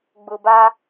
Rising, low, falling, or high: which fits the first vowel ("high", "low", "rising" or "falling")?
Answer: low